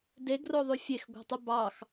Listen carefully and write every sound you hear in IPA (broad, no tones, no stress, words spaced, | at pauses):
deɡroðˤy fʲexɡʷɑ̤tˤu bɑx